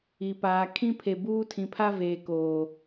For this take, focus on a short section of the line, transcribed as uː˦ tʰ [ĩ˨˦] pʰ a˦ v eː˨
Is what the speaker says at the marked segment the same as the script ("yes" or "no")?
no